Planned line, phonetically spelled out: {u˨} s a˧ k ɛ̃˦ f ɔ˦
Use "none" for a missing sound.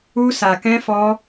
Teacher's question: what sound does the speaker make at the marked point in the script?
u˦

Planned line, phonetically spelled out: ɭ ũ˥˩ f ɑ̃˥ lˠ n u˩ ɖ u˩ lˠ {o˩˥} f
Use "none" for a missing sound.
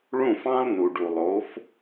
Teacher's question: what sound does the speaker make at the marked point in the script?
o˩˥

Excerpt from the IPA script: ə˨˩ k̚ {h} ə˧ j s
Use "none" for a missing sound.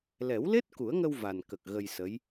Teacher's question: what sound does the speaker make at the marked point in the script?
ɣ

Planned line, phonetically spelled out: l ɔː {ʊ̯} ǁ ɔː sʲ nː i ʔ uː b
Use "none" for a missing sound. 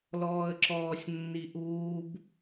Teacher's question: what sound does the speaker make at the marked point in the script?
ə̯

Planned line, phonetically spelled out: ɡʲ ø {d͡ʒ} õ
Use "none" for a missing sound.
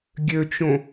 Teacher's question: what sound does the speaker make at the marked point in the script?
t͡ʃ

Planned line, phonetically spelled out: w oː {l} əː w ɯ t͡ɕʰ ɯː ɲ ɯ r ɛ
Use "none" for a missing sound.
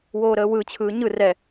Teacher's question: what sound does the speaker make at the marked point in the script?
ɾ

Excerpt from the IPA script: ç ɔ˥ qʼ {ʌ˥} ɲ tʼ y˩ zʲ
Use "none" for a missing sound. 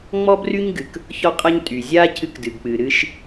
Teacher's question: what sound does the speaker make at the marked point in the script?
ʌ˥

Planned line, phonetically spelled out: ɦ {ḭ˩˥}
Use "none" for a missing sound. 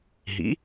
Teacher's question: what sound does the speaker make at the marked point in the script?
ḭ˩˥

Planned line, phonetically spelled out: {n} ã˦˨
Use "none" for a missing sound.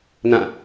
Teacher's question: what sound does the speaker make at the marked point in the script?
n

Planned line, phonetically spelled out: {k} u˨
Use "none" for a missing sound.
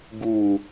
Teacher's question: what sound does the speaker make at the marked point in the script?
ɡ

